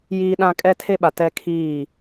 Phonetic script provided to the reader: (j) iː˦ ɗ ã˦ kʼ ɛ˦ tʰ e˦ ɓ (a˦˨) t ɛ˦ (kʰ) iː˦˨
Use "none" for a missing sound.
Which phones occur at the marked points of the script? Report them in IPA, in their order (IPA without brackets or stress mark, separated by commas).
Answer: j, a˨, kʰ